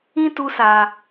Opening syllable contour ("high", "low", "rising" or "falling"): high